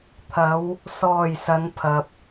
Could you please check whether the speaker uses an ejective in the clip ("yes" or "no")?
no